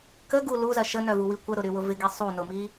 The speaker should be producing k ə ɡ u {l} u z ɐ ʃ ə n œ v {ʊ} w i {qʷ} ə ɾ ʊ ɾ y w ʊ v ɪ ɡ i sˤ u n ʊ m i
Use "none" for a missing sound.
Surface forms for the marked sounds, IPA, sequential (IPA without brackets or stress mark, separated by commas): l, u, kʷ